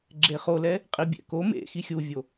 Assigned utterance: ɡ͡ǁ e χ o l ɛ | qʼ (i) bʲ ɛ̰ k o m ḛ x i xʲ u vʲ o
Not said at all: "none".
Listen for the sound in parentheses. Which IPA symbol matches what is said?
i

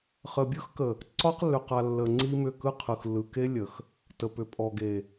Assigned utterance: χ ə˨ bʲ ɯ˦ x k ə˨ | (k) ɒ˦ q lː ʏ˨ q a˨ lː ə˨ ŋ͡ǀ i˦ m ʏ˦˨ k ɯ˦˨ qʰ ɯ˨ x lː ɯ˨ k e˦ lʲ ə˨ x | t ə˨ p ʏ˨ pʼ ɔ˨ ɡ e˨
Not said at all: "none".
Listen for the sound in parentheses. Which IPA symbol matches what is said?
ǀ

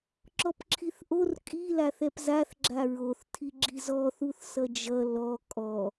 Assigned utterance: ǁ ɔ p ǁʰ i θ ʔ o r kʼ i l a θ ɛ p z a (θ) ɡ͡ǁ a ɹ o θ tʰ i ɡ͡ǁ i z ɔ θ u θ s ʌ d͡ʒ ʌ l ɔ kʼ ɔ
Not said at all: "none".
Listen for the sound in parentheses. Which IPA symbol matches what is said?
θ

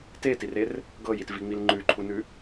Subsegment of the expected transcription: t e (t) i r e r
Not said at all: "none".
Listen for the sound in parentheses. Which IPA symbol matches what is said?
t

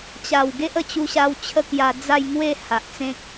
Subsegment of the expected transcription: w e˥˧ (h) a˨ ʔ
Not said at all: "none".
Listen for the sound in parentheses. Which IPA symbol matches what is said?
h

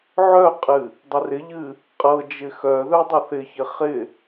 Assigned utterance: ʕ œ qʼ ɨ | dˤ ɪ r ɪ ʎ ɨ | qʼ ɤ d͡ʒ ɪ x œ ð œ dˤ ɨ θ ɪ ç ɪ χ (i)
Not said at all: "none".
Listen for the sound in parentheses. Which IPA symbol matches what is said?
ɪ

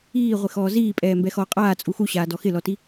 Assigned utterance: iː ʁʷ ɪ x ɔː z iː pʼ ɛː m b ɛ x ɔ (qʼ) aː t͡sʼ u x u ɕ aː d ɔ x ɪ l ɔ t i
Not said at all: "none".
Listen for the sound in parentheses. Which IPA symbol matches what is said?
qʼ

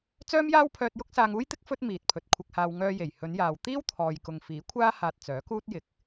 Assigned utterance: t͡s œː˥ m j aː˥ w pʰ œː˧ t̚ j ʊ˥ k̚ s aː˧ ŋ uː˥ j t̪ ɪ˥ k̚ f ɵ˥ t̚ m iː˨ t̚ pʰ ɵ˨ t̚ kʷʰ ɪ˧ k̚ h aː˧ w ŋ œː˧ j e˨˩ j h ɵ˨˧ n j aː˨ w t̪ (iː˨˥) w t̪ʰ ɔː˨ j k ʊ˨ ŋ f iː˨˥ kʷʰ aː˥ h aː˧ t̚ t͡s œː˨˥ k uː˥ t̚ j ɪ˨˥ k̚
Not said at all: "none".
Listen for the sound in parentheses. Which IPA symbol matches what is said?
iː˥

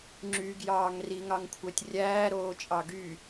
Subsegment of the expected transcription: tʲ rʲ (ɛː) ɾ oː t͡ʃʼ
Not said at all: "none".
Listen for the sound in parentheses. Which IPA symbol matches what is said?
æː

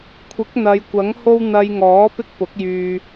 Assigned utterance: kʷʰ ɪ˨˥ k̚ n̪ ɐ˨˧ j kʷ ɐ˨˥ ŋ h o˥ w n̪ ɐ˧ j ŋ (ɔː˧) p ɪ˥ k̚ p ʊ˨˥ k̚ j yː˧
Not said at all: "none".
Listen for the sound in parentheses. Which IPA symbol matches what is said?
ɔː˨˥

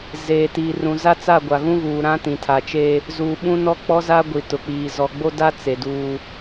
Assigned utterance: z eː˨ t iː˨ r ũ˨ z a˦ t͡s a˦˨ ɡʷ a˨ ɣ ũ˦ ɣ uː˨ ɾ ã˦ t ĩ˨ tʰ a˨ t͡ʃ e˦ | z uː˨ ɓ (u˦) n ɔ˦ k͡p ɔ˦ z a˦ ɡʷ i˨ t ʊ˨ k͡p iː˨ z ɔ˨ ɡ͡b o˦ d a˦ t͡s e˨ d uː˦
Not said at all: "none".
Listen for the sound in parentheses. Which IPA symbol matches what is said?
ũ˦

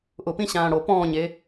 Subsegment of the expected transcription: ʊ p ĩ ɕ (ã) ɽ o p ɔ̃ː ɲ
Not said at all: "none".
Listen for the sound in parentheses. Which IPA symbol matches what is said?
ãː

